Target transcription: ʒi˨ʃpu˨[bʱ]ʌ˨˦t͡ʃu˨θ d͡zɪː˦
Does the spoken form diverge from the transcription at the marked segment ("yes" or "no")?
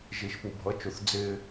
no